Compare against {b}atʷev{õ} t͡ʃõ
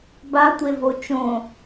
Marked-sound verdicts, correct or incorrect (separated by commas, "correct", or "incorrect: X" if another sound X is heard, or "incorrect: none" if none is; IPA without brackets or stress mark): correct, incorrect: o